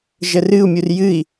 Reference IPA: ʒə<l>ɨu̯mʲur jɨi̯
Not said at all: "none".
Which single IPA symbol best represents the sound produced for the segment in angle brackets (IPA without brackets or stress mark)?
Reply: r